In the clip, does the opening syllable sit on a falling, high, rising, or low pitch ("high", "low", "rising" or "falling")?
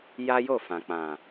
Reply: high